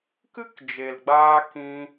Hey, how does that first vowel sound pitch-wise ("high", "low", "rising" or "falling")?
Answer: high